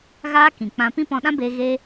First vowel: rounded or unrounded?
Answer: unrounded